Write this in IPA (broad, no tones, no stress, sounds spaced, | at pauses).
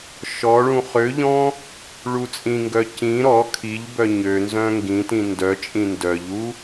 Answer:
ʃ ɔ ɭ ũ χ ø ʎ ɔ̃ | ɭ u t͡sʼ ĩ ŋ ɡ œ c ĩ ɾ ɔ kʰ i ʎ b œ ɲ ø n z œ̃ ŋ ɡ ĩ t ĩ n d œ t͡ʃʼ ĩ n d œ ʎ u